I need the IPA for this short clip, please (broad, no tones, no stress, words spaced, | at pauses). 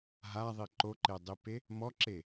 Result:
ɦaðˤi ǃoǃedˤipe | mɔǁe